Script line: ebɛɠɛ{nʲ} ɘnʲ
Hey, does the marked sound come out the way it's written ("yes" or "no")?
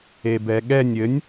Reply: yes